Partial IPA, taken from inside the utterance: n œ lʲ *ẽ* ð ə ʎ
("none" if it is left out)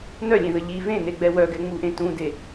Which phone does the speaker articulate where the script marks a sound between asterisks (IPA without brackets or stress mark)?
ẽ